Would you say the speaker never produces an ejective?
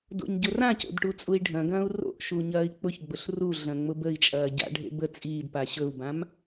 no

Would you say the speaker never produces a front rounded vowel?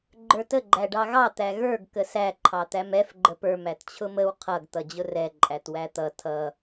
yes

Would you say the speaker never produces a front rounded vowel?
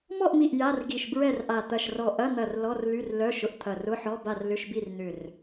no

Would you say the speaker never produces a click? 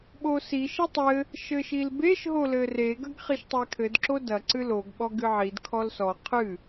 no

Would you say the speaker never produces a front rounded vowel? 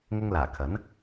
yes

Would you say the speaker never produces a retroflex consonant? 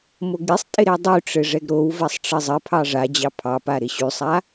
no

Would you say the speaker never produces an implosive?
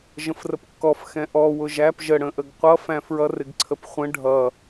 yes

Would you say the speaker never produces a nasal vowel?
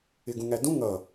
no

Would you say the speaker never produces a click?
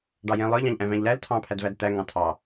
yes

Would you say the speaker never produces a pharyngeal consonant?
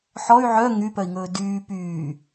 no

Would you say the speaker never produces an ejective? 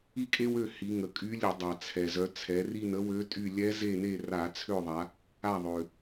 no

